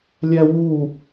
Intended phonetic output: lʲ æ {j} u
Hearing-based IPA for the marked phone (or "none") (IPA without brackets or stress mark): w